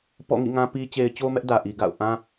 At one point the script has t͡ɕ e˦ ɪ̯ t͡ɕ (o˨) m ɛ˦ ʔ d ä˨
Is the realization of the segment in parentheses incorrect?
yes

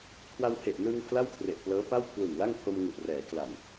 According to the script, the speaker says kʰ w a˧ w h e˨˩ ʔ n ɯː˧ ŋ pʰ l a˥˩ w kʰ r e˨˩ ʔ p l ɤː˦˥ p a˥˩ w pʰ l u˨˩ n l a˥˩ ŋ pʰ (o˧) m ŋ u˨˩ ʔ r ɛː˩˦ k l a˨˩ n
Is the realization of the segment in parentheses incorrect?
no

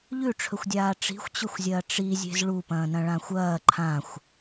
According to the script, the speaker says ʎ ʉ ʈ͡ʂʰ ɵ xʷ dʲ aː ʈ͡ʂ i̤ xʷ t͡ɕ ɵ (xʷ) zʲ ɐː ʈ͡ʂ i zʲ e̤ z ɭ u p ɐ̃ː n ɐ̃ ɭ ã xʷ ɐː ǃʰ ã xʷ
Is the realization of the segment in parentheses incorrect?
no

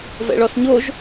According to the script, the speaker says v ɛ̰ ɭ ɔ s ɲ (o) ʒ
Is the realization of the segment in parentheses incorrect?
no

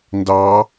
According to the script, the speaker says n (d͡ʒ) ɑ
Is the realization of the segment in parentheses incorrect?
yes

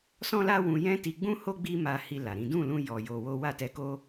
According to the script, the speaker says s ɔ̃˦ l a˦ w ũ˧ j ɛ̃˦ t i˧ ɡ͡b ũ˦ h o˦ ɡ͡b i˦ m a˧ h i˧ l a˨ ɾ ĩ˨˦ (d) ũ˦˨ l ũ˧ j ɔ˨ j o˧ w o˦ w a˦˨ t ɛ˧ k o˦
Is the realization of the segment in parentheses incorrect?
no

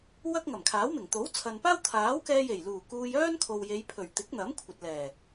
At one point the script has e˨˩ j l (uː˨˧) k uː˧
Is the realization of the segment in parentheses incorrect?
yes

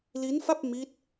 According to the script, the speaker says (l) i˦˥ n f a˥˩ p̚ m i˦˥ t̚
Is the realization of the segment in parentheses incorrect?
no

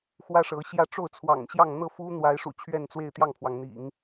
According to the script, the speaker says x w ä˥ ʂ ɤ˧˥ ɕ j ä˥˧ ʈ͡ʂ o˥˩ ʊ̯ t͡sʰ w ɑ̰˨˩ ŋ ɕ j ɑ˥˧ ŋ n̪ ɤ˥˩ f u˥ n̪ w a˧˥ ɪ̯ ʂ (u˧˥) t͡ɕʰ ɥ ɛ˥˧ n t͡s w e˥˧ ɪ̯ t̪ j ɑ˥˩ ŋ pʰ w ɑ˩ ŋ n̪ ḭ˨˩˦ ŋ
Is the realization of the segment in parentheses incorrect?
yes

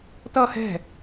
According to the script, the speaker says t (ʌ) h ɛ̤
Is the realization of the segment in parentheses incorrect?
no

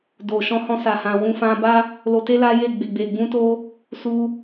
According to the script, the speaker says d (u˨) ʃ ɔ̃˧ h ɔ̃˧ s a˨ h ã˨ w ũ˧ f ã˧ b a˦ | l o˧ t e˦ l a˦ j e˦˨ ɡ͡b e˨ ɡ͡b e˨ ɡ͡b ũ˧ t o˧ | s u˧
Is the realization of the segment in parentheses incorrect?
yes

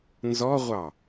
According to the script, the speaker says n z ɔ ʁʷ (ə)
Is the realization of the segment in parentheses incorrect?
yes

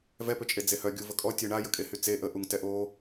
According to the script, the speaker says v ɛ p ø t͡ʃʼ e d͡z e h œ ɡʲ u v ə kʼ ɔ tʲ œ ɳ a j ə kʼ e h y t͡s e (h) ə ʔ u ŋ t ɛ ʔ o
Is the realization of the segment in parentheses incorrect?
yes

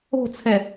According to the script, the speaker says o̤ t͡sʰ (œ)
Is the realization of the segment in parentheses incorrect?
yes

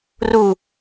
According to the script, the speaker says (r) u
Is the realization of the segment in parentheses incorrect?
no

